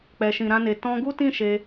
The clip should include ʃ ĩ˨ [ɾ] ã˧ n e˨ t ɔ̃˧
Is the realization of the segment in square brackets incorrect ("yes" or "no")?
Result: no